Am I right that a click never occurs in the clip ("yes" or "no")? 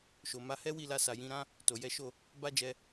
yes